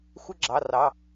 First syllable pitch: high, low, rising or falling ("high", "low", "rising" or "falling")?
falling